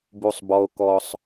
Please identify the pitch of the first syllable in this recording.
high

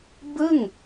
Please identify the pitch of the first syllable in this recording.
falling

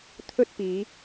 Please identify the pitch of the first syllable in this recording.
high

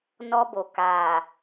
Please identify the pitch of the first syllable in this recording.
high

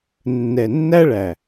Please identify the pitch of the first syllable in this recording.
low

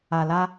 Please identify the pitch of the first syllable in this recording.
low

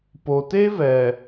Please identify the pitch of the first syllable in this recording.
low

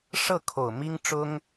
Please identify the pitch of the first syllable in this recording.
falling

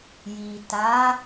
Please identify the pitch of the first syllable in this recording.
low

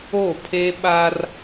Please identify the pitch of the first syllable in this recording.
falling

